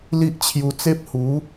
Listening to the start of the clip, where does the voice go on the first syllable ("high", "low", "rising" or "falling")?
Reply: high